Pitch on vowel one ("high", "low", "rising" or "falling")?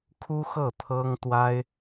high